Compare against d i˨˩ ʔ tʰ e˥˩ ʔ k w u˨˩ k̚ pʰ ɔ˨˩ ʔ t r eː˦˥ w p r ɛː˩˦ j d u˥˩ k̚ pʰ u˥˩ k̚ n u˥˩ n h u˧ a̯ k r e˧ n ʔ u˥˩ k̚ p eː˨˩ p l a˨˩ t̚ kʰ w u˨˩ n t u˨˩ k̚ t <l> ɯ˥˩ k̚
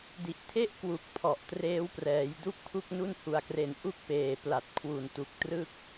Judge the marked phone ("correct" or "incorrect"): incorrect